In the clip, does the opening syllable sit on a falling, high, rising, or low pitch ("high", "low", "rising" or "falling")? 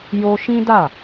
high